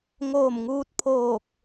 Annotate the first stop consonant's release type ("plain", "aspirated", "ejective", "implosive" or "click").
plain